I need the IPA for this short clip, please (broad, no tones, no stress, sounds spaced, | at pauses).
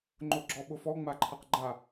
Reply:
ŋ͡ǃ ʊ ɡ͡ǁ ɔ ɓ ʊ f ɔ ŋ͡m a ǃʰ a q ɡ͡ǃ a